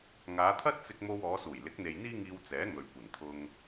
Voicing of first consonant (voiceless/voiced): voiced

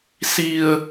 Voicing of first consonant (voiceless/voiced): voiceless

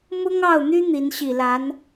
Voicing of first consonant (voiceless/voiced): voiced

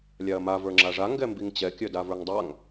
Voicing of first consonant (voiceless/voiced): voiced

